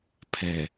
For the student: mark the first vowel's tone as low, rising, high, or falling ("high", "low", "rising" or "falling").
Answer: low